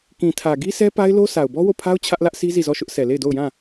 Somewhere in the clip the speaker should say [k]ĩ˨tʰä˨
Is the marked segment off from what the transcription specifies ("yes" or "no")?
no